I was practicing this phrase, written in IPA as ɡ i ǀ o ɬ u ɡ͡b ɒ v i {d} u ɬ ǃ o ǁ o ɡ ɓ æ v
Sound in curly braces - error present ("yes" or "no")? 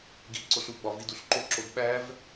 no